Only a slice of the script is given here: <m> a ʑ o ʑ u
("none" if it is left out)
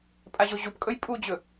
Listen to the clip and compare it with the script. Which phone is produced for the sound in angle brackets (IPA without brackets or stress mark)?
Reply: pʼ